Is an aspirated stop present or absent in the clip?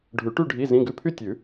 present